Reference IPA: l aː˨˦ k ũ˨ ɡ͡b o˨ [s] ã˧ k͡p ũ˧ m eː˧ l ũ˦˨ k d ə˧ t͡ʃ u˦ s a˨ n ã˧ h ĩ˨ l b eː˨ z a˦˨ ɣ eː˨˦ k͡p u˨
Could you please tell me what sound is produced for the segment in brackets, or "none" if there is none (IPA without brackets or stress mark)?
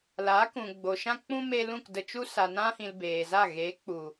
ʃ